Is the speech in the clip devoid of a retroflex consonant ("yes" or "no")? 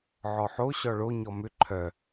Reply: no